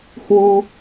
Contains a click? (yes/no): no